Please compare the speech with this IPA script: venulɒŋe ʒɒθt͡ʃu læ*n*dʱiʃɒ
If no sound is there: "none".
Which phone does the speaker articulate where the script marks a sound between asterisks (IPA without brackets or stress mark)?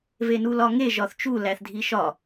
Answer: θ